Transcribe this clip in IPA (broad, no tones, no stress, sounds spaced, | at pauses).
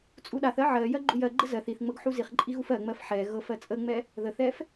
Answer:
t͡sʼ u ɗ a θ ɜ ʕ ɜ j ɜ ɡ͡ǃ u j ɜ ɡ͡ǃ ə z ɜ θ i θ ŋ͡m ɤ ɡ ħ u z i χ ǃʼ i ɣ u f ɜ ŋ͡m ɜ f ħ ɛ ɣ ɤ f ɜ t͡sʼ ə ŋ͡m ɛ | ð ə θ ɛ f